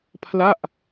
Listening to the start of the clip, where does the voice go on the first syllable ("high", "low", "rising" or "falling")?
falling